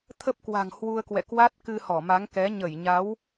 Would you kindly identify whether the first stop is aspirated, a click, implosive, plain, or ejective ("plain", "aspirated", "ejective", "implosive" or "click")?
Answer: aspirated